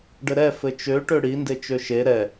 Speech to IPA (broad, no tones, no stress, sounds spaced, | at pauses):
ɖ ɘ ɾ ɛ f ɘ t͡ʃ ø ʈ ø ɽ i n d e t͡ʃ ø ʃ e ɾ ɛ